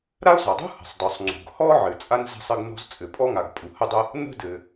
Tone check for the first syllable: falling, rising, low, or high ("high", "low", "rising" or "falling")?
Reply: high